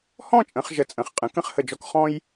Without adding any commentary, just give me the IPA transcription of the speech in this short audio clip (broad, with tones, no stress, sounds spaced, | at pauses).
h ɔ̃˥˧ t͡ʃʼ ə̃˩˧ χ ʒ ə˧˩ t͡sʼ ə̃˩˧ χ qʼ ə̃˩˧ k ə̃˥˧ χ h ə˧˩ d͡ʒ ɔ˧ k χ ɔ̃˥ j